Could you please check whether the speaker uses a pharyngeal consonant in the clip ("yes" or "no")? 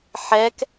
yes